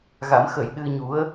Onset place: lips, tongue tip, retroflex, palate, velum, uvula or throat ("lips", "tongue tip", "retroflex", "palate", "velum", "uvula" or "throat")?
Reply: velum